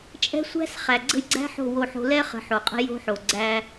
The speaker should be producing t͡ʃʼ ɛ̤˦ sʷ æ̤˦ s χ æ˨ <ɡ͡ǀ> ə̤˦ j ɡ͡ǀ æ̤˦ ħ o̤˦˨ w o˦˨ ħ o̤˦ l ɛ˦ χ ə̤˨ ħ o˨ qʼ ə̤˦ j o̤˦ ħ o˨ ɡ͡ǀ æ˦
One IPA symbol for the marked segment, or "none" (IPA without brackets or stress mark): ɡ͡ǀ